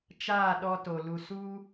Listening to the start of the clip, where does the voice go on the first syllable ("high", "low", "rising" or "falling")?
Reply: falling